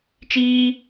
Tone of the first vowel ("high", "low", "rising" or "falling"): high